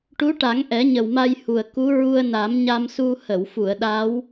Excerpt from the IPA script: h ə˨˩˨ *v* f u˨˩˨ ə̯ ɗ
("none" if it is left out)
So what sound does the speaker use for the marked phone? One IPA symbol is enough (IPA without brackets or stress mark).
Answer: w